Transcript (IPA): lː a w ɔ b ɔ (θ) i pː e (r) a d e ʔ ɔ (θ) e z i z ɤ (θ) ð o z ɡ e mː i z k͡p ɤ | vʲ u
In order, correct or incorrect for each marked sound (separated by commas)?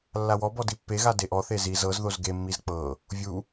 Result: incorrect, incorrect, correct, incorrect